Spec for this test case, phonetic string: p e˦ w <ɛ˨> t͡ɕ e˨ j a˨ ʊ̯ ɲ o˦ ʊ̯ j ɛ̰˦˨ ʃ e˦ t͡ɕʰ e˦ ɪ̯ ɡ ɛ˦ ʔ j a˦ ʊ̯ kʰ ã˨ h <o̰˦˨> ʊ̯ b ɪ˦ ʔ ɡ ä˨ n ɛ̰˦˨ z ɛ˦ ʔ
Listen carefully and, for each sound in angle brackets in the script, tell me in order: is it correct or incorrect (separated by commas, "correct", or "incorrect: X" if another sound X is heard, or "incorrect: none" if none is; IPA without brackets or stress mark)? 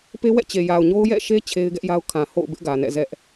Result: incorrect: ɛ̰˦˨, correct